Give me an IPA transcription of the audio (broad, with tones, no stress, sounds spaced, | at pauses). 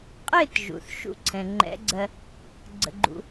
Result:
qʼ ɪ˥˧ t ʒ ṵ˩ θ ʃ ṵ˥˧ ǀʰ ɛ̃˩ ŋ͡ǃ ɛ̰˧˥ ɡ͡ǀ ɜ˧ | ɡ͡ǀ ə̰˧ ɡ͡ǃ ṵ˧